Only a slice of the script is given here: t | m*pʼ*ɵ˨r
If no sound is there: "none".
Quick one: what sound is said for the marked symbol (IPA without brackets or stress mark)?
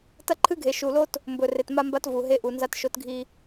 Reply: b